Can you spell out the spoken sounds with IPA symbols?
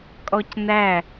kʼ ɔ c n æ

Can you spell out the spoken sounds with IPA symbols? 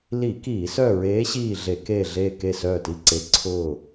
l i˧˩˧ k iː˧˩˧ s œ˦˨ ɹ eː˧˥ ɕ iː˦˨ ɮ e˧˩˧ k eː˦˨ ɮ eː˦˨ k e˦˨ s œː˦˨ t i˦˨ ǀ e˧˥ ǀʰ ʊː˦˨

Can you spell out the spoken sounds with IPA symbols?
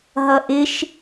ɦ ʌ ʔ ɪ ʃ

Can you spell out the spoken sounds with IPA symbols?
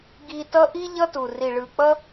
ɡ i˧ t ʌ˦ ʔ i˦ ʎ ʌ˦ t u˨ r i˨ ɭ ɯ˨ k͡p ʌ˦

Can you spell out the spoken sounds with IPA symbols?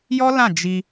j ɔ˦ l ã˦˨ d͡ʒ i˧

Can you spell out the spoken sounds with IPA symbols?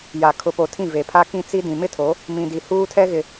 j a˨ kʰ ʊ˨ p o˨ tʰ ĩ˦˨ v e˨ pʰ a˦ k ĩ˦ t͡s i˦ d ĩ˨ m ɪ˦˨ tʰ o˨˦ | m ĩ˨ d i˨ h uː˦ tʰ ɛ˦ ɣ ɪ˨

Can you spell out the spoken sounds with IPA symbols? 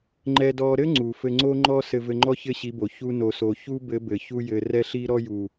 ŋ͡ǃ ɛ˦ d ɔ˦ ɾ ɘ˦ ŋ͡ǀ u˨ f ɘ˧ ŋ͡ǀ o˦ ŋ͡ǃ ɔ˦ s ɘ˧ v ɘ˧ ŋ͡ǃ ɔ˦ ç ɘ˦ ɕ i˨˦ b o˨ ç u˧ n o˨ s o˨ ç u˦ b ɘ˨˦ b ɘ˨ ç u˧ j ɘ˨ r ɛ˦ ɬ i˦ ɾ ɔ˦ j u˨

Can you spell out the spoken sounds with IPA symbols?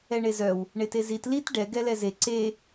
ɛ ɳ e z œ w | ɳ e t e z i t l i t ɖ ɛ ɡ ɛ l ɛ z e ǀ e

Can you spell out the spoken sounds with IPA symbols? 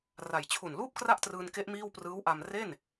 r a˨˩ j t͡ɕʰ u˨˩ n l uː˥˩ p̚ k r a˥˩ ʔ t r ɯː˧ n k e˦˥ ʔ m iː˥˩ w p r ɯː˦˥ w ʔ a˧ m r e˥˩ n

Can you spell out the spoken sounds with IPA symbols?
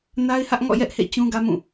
n a˦ ɪ̯ h ä˦ ʔ ŋ ɔ̰˦˨ j ɛ˦ ʔ h ḛ˦˨ t͡ɕ ũ˦ ɡ ä˦ m ũ˦˨

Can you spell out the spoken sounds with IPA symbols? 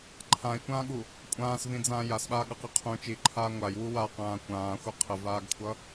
ǃʰ ã i̯ kʷ ãː ɠ u | kʷʼ ãː s v ĩ d͡z ãː j a s ɓ aː ɠ ʌ q i qʰ ũ t͡ʃ i ǃʰ aː ŋʷ a j w u w a q ãː kʷ ãː xʷ a qʰ ə v aː ɡ kʷʰ ʌ

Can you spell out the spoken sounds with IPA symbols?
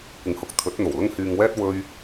kʷ ɪ˨˥ ŋ h ʊ˨ k̚ t̪ʰ ɵ˨˥ t̚ n̪ o˨˩ w l ʊ˥ ŋ h yː˧ ŋ w ɛː˥ t̚ w ɵ˥ ɥ

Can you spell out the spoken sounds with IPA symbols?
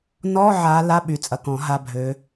n ɔ˧˥˧ ʕ a˨˦ l a˧˥˧ ɓ y˨˩ t͡sʼ ɐ˨˩ k ɔ̃˨˩˦ ɦ a˧˥˧ bʱ ø˨˦

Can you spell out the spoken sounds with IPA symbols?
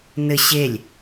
n ɘ ɕ e lʲ

